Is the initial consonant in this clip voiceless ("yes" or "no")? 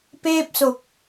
yes